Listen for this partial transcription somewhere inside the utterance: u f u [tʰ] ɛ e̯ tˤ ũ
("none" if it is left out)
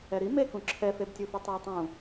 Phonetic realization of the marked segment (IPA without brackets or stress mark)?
tˤ